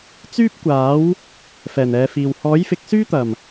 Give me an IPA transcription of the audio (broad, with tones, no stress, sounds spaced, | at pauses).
t͡s yː˥ p̚ kʷ aː˨˥ w | f ɛː˨˩ n ɛː˨˧ f iː˨ w h ɔː˨˥ j f ɪ˨˥ k̚ s yː˥ t̪ ɐ˨˩ m